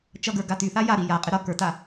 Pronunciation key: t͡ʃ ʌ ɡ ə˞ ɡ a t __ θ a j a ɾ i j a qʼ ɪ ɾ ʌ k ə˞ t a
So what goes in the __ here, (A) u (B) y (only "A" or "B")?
B